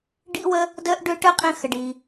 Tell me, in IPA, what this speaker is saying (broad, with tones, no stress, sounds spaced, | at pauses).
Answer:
ɖ ḭ˥ w ə˥ | d əː˥ ʔ ɖ ʏː˥ ʈ ə˥ qʼ ĩ˧ x ə˩ ɖ iː˩